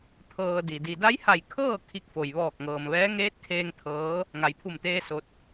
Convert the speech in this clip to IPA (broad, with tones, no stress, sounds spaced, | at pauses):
t̪ʰ ɤː˩ d i˩ d i˩ d a˧˥ j h a˧˩ j kʰ ɤː˥˨ kʰ i˧˥ k̚ f o˩ j ʋ ɔː˧˩ k̚ ŋ ɤː˩ m ʋ ɛː˧˥ ŋ eː˧˥ t̚ kʰ eː˧ ŋ t̪ʰ ɤː˧˥ | ŋ a˩ j pʰ u˧˩ m t̪ eː˧ s o˧ t̚